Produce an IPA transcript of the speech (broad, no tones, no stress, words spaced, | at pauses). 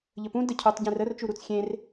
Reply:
ʎəpũ dəcʰutˤɟẽr ərt͡ʃu ɾut͡sxʲẽr